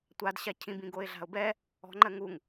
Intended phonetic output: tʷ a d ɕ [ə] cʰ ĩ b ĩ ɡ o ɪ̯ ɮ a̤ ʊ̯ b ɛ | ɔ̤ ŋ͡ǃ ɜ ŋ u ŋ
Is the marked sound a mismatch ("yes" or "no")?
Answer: yes